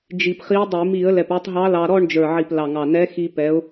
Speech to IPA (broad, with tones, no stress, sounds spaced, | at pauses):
d͡ʒ i˨˩ p χ i˧˥ dˤ i˧˩˧ m i˧˩˧ ə̯ l ɛ˨˩ p ə˞˧ tˤ ɦ ɑ˧˥ l ɑ˧ ɾ ɔ˥˧ ɳ d͡ʒ ə˞˨˩ ʕ i˨˩ p l ɑ˨˩ ŋ ɑ˨˩ n ɛ˧˥ x i˧ p ɛ˧˥ ʊ̯